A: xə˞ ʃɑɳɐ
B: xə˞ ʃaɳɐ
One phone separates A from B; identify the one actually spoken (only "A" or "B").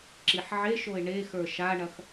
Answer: B